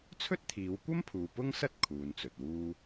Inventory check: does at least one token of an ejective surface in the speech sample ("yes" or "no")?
no